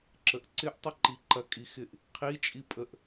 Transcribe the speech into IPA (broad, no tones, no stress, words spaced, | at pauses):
ǁəʔǀɪʔ tˤəǃiǃɐ kʼixɪʔ | qʰi t͡ʃʼipʼəʔ